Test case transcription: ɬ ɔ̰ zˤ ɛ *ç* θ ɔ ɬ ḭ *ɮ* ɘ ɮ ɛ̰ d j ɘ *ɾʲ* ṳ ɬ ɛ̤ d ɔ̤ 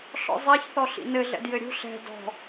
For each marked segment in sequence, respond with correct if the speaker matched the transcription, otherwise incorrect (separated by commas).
correct, incorrect, correct